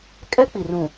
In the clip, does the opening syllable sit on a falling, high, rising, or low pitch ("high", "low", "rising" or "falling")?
high